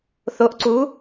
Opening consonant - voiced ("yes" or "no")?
no